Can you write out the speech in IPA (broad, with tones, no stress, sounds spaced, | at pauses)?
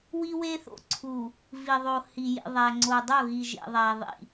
w i˦ w e˦ θ o̰˨ ǀʰ u˨ | v i˨ ðˤ o˨ h i˨ j ḭ˨ ðˤ æ˨ ŋ͡ǀ o˨ dˤ o˦˨ ɣ i˨ ʒ ḛ˨ ðˤ æ˨ ðˤ ḭ˨